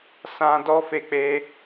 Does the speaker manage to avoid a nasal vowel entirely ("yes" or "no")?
no